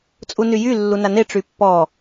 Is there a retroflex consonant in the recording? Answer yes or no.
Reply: yes